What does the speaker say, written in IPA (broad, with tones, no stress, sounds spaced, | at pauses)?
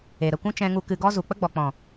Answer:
e˨ ɾ ə˦˨ kʷ ũ˦ t͡ʃ ɛ̃˦ ŋ u˦ k ɨ˧ ɡ ɔ˦ z u˨ k͡p ə˦ ɡ͡b ɔ˨ k͡p ɔ̃˨